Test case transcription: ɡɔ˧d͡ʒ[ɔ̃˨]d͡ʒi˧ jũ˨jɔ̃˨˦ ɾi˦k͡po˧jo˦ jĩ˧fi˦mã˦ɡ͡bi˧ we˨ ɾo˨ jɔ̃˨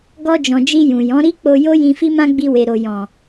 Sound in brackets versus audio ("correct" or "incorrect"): correct